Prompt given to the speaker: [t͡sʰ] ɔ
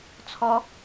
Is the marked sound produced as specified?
yes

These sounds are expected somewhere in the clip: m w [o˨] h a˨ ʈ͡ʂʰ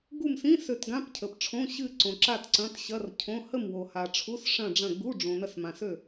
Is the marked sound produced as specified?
yes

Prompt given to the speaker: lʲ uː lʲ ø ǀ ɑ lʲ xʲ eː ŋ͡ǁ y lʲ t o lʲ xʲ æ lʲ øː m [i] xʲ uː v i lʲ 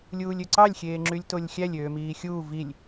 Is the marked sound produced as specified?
no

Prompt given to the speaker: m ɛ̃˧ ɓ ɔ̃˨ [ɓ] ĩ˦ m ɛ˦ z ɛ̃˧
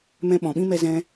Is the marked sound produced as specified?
yes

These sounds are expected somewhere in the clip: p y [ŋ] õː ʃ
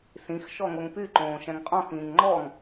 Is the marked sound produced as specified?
no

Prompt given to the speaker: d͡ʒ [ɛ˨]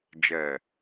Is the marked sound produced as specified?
yes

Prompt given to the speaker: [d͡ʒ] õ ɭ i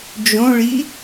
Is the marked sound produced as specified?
yes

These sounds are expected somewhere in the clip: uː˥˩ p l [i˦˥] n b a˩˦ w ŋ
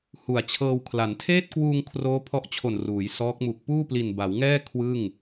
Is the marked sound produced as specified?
no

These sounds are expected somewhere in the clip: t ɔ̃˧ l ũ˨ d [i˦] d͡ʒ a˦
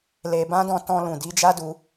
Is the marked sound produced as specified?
no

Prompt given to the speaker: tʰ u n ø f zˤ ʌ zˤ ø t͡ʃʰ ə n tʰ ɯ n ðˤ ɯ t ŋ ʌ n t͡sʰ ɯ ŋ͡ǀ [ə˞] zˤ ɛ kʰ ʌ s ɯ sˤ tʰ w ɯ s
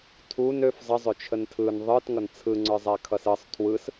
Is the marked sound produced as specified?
yes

